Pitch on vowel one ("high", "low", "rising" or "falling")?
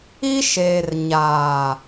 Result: high